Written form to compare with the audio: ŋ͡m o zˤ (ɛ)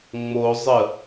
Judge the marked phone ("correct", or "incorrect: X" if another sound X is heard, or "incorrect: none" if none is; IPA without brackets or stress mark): incorrect: ə